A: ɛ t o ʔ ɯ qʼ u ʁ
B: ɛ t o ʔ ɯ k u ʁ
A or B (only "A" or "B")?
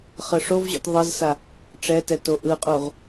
A